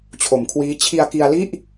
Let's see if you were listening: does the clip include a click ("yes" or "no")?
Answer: no